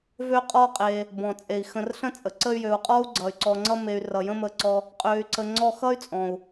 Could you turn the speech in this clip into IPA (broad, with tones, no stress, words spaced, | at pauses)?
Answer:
vø˦qʼɔ˦qʼe˨ | bɔ̃˩t͡sʼe˩i̯xə̃˨rɬə̃˥ t͡sʼə˩ǀə˦y̯jø˨u̯qʼɔ˥u̯ ɡ͡ǀʌ˩y̯ǀɔ˨ŋ͡ǀʌ˦me˨y̯ rʌ˩jə̃˦mə˨ǀɔ˨ | qʼø˨y̯ǀə˨ ŋ͡ǀɔ˦ xʌ˥y̯t͡sʼɔ̃˩u̯